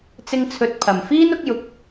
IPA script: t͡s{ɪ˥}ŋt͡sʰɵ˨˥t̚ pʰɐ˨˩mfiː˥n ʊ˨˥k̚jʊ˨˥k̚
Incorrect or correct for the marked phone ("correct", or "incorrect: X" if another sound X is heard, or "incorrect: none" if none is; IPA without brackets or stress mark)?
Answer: incorrect: ɪ˧